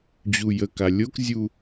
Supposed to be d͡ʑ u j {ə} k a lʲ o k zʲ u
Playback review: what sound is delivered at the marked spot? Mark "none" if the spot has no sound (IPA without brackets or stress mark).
ə